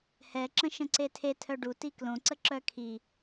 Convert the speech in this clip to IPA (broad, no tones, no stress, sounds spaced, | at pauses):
h ɛ ǁ ə̃ ʃ ə̃ ǀ e tʰ e tʰ œ ɖ u t i k l õ ǀ ə ǁ œ kʰ i